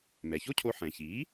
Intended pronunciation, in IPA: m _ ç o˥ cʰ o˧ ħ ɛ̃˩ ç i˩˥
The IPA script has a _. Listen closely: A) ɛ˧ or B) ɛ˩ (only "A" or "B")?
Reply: B